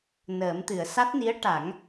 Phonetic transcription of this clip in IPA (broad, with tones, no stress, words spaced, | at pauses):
nəː˨˩˦mt̪ɨ˨˩˨ə̯ sa˦˥t̚ni˧˥ə̯ ʈa˨˩˦ŋ